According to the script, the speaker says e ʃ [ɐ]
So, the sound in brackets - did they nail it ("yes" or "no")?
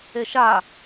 no